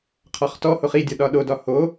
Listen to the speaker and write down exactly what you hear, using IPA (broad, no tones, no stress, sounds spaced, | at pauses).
qʰ ɒ χ t ɔ h o χ i dʲ ɒ ɗ ɒ ɗ o d ɒ h o